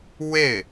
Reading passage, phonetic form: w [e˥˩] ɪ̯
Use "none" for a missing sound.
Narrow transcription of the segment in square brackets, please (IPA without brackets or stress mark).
e˥˩